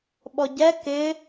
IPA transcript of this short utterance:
ɓɔɟɛ kɪ

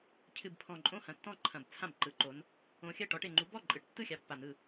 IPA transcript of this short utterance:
cʰɨ˨˩bpʰɔ̃˨˩ ǃʼõ˥˩hɐ̃˨˩tːɔ̃˥˩ǃʰɐ̃˨˩b t͡sʰã˥˩bǃɯ˨˦ǃo˨˦n | õ˨˦xʲɜ˥˩ʈɔ˨˦ʈ e˨˩ŋ͡ǃu˨˦ bɔ˥˩ǃʼɯ˨˦ʈtːɯ˥˩xʲa˨˦ pːa˨˩n̪ɯ˥˩

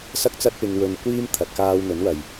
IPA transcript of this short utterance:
sɐ˥k̚t͡sɐ˥t̚pɪ˧ŋwɵ˧n kʷiː˥mt̪ʰɐ˨˥t̚ kaː˧wn̪ɵ˨˥nwɐ˨j

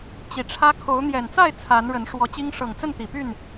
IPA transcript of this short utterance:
t͡ɕi˨˩ʈ͡ʂʰä˦ kʰo˨˦ʊ̯ n̪jɛ˨˩nt͡sa˥˨ɪ̯ t͡sʰa˨˦nɻə˨˦n ʂwɔ˨˦t͡ɕi˦ŋ ʂɤ˨˩ŋt͡sə˥˨nt̪i˨˩py˥˨n

